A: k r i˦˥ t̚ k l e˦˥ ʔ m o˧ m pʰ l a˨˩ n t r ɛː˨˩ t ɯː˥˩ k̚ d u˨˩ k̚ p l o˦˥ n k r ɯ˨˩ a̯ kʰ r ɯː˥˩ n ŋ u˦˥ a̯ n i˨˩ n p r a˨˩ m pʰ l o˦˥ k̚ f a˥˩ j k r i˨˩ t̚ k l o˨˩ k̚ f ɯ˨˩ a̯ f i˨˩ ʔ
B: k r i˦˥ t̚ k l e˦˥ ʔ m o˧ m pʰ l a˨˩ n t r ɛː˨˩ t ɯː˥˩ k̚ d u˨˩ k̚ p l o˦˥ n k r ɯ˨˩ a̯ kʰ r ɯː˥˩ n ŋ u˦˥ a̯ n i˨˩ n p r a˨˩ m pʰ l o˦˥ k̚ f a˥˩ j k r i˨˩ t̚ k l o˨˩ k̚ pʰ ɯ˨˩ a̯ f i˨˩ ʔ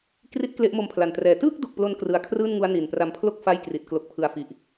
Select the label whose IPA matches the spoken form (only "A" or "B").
B